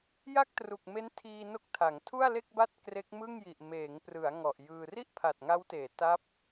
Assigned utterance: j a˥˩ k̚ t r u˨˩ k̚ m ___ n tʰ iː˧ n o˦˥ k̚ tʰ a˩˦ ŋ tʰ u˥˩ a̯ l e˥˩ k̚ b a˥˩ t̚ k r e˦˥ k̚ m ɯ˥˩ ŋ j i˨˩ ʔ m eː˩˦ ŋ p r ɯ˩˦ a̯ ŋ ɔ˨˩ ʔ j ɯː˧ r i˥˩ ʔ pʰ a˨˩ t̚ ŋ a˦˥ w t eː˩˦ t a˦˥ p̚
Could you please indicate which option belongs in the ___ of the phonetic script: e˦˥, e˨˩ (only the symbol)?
e˦˥